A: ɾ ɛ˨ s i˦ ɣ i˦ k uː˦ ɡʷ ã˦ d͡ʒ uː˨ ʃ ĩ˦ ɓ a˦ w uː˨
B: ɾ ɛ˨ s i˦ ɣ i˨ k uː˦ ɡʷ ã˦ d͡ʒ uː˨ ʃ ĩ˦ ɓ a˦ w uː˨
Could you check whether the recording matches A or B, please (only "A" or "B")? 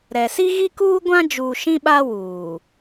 A